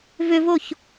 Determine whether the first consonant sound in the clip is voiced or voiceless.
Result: voiced